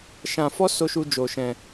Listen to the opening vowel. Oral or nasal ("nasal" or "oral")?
nasal